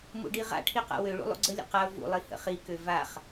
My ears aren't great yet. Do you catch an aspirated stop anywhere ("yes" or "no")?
yes